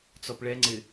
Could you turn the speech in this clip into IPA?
t͡sɔpɭɛŋ͡ǀɪ

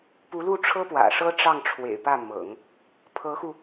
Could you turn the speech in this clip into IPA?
pu˧˥lu˥˩ ʈ͡ʂʰɤ˥pwä̰˨˩ʂɤ˥ ʈ͡ʂɑ˥˩ŋʈ͡ʂʰwḛ˨˩ɪ̯pä˥˩mɤ̰˨˩˦ŋ | pʰɤ˧˥xu˧

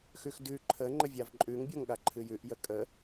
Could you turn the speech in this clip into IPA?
xʉxdʉ ǃʰə ŋ͡ǃəvʲavǃʼʉŋ bʲoŋɠaǃʰɨjʉʔ jəkʼə

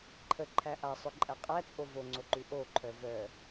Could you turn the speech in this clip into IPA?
ǃʰəǃʰæ ʔasˤœǃʼæ qʼæt͡sʼo voŋ͡ǀoǃʉ ʔoǃʰœ vœ

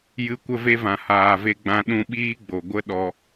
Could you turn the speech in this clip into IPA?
jɨ˧kʷə˦ve˦vã˨ haː˨ve˧ɡ͡bã˧ ɗũ˧ɓiː˦ɡ͡bo˨ ɡʷə˦ ɗɔ˧

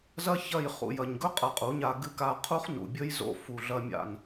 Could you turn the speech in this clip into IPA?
zɐ˦ çɐ˦˨j χṵ˨ jɐ˨ɲɡɵ˦ qʼɐ˧qʼu˨˦ɲa˧ ɡɨ˧ka˧qʰu˦χ nṵ˨bʲɵ˦jzo̰˧ fu˨ɮɐ˧mʲa̰˨n

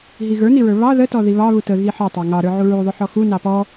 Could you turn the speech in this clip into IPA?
ɦiɣə˞niɹə˞ βɑ ðə tɔðiβɑ βutəɣi ħʌtˤɑ ŋɑɾə˞ʕu ɹuðˤʊħɔ xu nɑpɔ

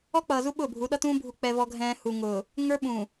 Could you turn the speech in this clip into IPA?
ɔ˦k͡pʌː˨zu˦ ɓʊː˦˨bʱu˨˦ɗʌ˦tũː˦ bʱu˨k͡pɛ˨vɔ˨ɡʱɛ̃ː˨ hu˨ŋʊː˨ | ŋə˞˦ɓũ˨

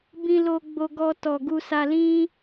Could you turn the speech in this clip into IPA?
bĩ˧lo˧ ɡ͡bo˧ɡɔ˧tɔ˨ɡu˧ sa˧lĩ˦

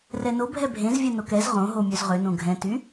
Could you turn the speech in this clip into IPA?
rɛno bʱɛbʱẽzvʲɛ nokɛz ʁõɦo mʲøzʁønõ ɡʱɛ̃ty

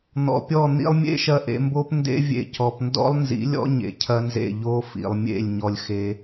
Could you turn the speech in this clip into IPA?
n̪ɔ̰˨pʲɔ˦˨ n̪ḭ˧lˠmʲḛ˦ ʃɐ˧ʔḛ˧mbo˦p ndḛ˦vʲḛ˧ cɔ˨pndɔ̰˦lˠnzḭ˨˦lʲɔ̰˦ ɲḛ˨cʰɐ˦nzḛ˦˨ ʎo˧ fḭ˨lˠmʲḛ˦˨lʲ ɲɔ˧lʲxe˧

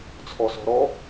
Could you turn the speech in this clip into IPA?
t͡sʰɔsɔ̤ɾɔ

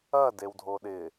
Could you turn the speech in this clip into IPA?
ɐ dewdʱoɗɪ

